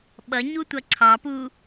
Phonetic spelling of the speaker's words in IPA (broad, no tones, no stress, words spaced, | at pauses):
ɓʌɲutʷʌ ǀʰɑpu